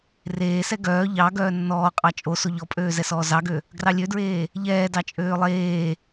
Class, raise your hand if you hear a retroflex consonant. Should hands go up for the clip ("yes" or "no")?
no